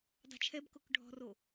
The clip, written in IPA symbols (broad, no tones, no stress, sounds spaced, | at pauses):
dˤ ɛ̤ t͡ʃʰ ɛ b k o k ɖʱ ɔ̤ r o